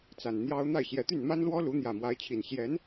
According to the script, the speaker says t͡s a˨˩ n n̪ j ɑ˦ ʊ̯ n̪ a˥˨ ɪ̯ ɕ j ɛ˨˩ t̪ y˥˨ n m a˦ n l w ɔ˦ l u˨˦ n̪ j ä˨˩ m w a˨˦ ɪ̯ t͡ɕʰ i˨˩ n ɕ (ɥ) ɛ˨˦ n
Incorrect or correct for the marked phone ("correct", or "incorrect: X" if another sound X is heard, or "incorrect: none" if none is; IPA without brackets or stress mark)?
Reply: incorrect: j